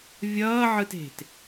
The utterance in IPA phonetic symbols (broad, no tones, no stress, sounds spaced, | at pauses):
vʲ ʌː ʕ ɯ t e̤ t